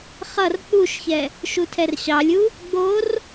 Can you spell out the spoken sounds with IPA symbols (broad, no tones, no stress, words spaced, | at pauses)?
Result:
χʌr k͡puʃçɛ | ʃutʰɛrɕɑlʲu | ɡ͡bor